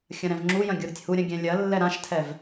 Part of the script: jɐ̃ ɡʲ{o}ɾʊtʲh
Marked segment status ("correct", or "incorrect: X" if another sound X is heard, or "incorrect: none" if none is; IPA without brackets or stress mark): incorrect: u